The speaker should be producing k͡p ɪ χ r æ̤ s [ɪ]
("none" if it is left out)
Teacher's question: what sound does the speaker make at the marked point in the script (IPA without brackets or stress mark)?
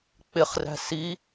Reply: i